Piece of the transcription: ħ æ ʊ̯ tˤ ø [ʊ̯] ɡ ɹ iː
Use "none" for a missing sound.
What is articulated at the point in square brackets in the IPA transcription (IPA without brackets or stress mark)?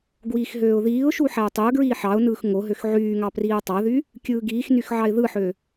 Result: ʊ̯